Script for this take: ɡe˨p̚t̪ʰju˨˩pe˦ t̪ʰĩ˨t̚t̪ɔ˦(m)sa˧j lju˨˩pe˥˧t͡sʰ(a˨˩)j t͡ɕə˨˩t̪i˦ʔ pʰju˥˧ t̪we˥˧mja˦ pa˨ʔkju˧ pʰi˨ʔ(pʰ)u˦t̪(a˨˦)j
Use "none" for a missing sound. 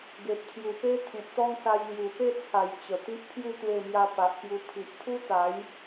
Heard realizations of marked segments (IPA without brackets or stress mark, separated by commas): ŋ, a˨˩, pʰ, a˨˦